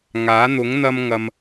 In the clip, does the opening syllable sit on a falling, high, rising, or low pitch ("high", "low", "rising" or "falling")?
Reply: rising